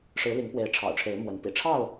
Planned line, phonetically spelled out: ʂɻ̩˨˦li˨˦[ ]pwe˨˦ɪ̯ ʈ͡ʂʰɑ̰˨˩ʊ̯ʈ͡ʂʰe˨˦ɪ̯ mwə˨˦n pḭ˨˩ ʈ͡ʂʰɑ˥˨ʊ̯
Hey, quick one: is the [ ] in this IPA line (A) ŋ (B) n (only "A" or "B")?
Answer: A